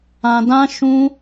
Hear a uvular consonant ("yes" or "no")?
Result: no